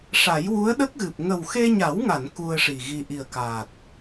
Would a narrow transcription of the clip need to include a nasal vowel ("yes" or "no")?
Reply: no